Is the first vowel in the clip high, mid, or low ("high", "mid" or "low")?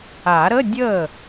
low